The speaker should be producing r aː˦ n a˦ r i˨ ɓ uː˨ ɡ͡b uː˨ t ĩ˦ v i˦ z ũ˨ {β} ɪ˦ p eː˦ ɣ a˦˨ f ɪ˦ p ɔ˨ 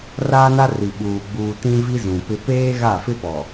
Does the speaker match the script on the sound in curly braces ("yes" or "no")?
no